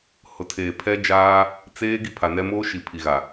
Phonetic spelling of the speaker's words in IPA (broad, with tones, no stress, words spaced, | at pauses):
hʊ˨tʰeː˨pʰɛ˦d͡ʒaː˦ | t͡seː˦ ɡi˦pʰa˨nɛ˦ moː˦ʃi˨ pʰi˨ɣa˨